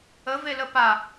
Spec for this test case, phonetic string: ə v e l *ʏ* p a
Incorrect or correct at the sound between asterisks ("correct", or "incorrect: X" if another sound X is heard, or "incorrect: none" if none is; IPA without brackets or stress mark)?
incorrect: ə